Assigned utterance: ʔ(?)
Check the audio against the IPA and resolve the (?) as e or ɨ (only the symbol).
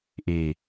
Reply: e